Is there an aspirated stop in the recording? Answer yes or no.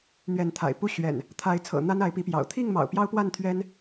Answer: yes